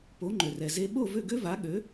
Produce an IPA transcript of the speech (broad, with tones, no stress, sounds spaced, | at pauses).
p o˩˥ ŋ͡ǃ ø˩ r ɛ˩ z e˧ ɓ o˥˩ v ø˥˩ ɡ ø˥ v a˩˥ ɠ ø˩˥